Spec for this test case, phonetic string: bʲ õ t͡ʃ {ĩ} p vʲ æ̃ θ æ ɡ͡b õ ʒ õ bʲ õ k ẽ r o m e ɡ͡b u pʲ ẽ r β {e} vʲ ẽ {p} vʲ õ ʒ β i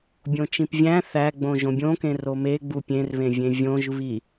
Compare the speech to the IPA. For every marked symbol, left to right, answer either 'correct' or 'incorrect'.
correct, incorrect: ẽ, incorrect: none

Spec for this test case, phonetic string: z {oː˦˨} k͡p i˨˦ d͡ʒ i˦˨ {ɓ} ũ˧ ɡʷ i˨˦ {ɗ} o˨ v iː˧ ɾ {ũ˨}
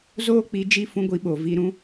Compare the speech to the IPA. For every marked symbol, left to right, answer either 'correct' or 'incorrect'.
incorrect: oː˦, incorrect: f, incorrect: ɓ, incorrect: ũ˦

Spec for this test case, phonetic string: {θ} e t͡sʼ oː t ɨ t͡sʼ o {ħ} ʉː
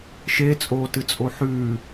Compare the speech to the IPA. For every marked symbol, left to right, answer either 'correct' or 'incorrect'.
incorrect: ʃ, correct

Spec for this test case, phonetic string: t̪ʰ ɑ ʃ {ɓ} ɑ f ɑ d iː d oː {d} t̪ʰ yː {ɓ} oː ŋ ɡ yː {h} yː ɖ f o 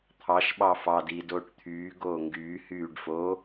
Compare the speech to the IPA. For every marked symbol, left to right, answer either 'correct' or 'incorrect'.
correct, incorrect: ʈ, incorrect: ɡ, correct

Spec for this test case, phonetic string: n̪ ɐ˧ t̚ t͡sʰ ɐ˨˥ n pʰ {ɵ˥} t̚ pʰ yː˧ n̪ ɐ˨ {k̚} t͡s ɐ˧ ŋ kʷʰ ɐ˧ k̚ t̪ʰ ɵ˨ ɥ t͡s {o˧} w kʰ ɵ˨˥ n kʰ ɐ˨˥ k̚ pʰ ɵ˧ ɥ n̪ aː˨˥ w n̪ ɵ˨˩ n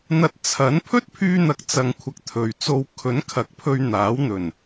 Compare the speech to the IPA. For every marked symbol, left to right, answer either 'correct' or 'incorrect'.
correct, correct, correct

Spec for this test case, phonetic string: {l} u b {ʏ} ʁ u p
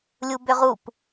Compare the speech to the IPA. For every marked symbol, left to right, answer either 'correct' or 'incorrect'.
incorrect: lʲ, correct

